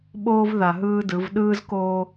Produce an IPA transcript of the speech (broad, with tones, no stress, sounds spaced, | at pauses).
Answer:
ɓ oː˦ v ð a˨ ɦ ɯː˦ d ɯ˨˦ v ɗ ɯː˦ z k oː˦